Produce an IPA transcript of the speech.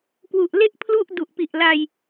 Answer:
k w u˨˩ ʔ l e˥˩ ʔ pʰ l u˥˩ ʔ d u˨˩ ʔ p i˨˩ ʔ l a˧ j

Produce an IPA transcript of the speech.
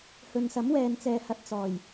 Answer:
h ɵ˨ n s ɐ˨˥ m w ɛː˨ n t͡s ɛː˨ h ɐ˨ t̚ t͡s ɔː˨˩ j

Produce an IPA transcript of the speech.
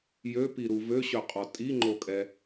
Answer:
j ø p i ɾ u v ø ɕ œ qʼ ɔ tʼ i ŋ͡ǃ o kʼ ɛ

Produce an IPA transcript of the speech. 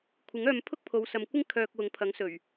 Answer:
kʷʰ ɪ˨˥ ŋ œː˧ m pʰ ʊ˥ k̚ pʰ o˨˧ w s ɐ˨ m kʷ ɪ˥ ŋ kʰ œː˧ k̚ w ʊ˨˥ ŋ pʰ ɐ˨˥ ŋ s ɵ˨˩ ɥ

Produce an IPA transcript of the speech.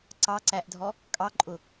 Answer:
ǀ ɑ ǀ æ ʔ dʱ ɔ | kʼ ɑ ǃʼ ʊ

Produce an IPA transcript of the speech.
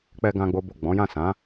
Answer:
k͡p ɛ˧ ɡ ã˦ ɡ͡b o˦ b o˦˨ ɡ͡b ɔ̃˨˦ j ã˦˨ s ã˨˦

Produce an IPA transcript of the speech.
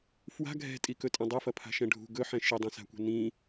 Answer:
f w a̤ ɡʱ ɛ̤ tʼ i k ɵ tʼ ɐ̃ dˤ ɵ f ɐ pʰ a̤ ʃ ɛ̃ ɖʱ ṳ ɡ ɵ ħ ɛ̃ ʃ i dˤ ɐ̃ s a̤ kʷ ɛ̤ n ĩ

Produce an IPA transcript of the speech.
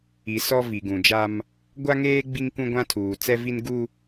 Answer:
i˨ s ɔ˦ v i˨ ɡ ũ˨ d͡ʒ a˦ m | ɡʷ a˦ ŋ eː˦ ɡ͡b i˦ ŋ k ũ˦ ɡʷ ã˦ tʰ uː˨ t͡s ɛ˦ v i˦ n ɡ u˦

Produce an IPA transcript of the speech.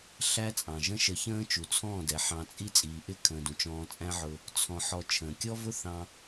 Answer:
ɬ æ˦ t͡sʼ ɑ̃˨ ʒ ə̃˦ ʃ ə˧ ç ə̃ː˦ t͡ʃ u˨ t͡sʰ ɔ̃ː˦˨ d ɛ˨ ħ ɑ̃˧ t͡sʼ i˦ t͡sʼ iː˨ ʔ ɪ˦˨ kʰ ə̃ː˨ d ũ˨ t͡ʃ ɔ̃ː˧ t͡sʼ æ̃˦ ʕ ʊ˧ | t͡sʰ ɔ̃˨ ħ ɔ˨ t͡ʃʰ ə̃ː˨ kʲ ɔ˦ v ʊ˦ θ ɑ̃˧

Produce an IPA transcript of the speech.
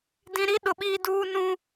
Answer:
d ĩ˨ ɾ i˦ ɗ ʊ˨ ɓ iː˦ d uː˦ n ũ˦

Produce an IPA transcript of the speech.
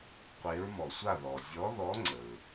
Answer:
qʷ e˨˦ ɹ m ɔ˩ sʷ a˥˨ ð ɔ˩ zʲ ɔ˨˦ ð ɔ˨˦ ŋ͡ǀ ə˩ ɹ

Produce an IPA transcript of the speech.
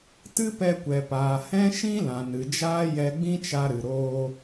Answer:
t ɨ˦ p ɛ˧ kʷ ɛ˨ p aː˨ h ɛ̃˦ ʃ ĩ˦ l ã˨ n ɨ˨ d͡ʒ aː˦ j ɛ˧ ɡ͡b ĩ˦ t͡ʃ a˧ ɾ ɨ˨ ɾ oː˧

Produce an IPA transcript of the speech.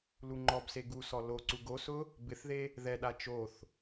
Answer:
l u ŋ͡ǃ ɔ b s e ɡ u s ɔ l o ǀ u ɡ o s ʊ | b ɪ θ ð e | ð ɛ ɗ a t͡ʃ o θ

